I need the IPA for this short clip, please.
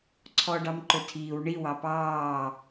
ǀʰɔɖɑmǃɵtʰiːw ɳi wɑpɑː

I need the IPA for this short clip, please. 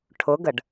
ʈʰʊɡəɖ

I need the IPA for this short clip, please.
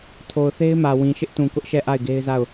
tʰo˨ʊ̯θe˦ɪ̯mä˨ wĩ˨ʃɪ˦ʔtũ˨ kʊ˦ʔʃɛ˦˨ ʔa˦˨ɪ̯ɡe˦ɪ̯za˦˨ʊ̯

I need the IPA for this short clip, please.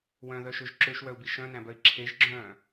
wœ̃ðœʃøʒ ǁøʃwœu̯bi ʃœ̃næ̃bœi̯ ǁʰeʒɡ͡ǁœ̃ː

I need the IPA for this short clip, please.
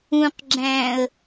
ũqɡ͡ǁæ̃ːə̯

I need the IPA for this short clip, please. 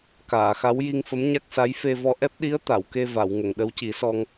kaː˨˩˨xa˧˥w ji˧ŋfə˧˥mɲa˦˥k̚ sa˧˥jfe˧vɔ˧ ʔɛ˦˥p̚ɗi˧˥ə̯ t̪a˨˩˨wke˧ va˨˩˨w ŋə˨˩˨ŋɗə˧˥wci˨˩˦sɔ˧ŋ

